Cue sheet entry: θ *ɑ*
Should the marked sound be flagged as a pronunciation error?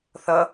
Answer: yes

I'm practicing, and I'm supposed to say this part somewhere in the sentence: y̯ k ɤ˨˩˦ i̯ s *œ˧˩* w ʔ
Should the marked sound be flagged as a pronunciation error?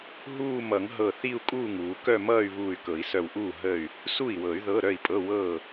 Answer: no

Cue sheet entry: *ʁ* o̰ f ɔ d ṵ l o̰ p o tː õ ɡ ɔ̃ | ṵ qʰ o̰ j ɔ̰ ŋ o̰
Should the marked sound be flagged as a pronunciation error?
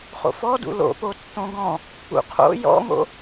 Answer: yes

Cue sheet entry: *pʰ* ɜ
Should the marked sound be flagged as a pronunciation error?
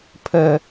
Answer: no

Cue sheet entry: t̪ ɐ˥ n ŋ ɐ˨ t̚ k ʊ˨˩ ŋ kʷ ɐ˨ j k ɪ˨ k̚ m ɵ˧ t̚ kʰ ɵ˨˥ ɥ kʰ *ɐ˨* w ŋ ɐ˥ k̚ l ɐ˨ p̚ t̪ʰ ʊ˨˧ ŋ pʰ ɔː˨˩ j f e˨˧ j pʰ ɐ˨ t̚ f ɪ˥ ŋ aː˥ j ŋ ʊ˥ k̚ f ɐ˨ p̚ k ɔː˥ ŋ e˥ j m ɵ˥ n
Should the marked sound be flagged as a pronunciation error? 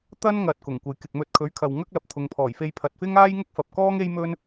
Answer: no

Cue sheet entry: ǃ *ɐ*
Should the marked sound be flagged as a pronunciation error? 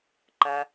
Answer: no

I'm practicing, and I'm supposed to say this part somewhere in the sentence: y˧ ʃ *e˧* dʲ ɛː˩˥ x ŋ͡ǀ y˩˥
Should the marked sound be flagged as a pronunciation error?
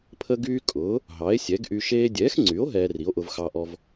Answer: yes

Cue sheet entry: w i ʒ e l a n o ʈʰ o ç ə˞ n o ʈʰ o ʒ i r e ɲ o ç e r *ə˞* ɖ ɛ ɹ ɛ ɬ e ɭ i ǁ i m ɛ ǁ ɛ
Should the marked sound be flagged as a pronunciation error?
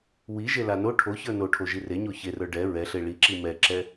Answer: no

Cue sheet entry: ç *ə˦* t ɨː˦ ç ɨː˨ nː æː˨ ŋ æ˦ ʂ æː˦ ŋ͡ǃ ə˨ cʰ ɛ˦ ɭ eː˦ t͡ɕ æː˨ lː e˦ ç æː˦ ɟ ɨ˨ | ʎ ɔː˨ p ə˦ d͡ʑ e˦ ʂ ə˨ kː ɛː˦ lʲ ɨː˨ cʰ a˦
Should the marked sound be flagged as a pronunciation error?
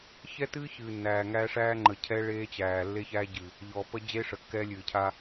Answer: yes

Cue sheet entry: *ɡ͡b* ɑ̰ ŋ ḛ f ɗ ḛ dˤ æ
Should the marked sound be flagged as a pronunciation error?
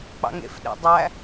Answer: yes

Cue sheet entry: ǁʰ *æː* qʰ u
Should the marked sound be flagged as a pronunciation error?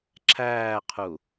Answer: no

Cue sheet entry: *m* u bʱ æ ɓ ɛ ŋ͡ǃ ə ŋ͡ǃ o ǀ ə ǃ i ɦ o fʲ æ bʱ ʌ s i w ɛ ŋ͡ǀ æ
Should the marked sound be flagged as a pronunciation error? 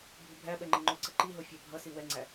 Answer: yes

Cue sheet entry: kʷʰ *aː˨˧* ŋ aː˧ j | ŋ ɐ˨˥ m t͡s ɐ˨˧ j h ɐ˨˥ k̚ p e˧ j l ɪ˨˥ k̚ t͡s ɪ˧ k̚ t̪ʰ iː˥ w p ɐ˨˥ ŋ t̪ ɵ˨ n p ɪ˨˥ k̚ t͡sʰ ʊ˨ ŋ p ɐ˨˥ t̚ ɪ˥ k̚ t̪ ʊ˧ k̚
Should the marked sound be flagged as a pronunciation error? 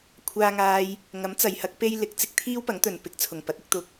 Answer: yes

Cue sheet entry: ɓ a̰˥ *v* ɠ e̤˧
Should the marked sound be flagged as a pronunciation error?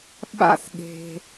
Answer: yes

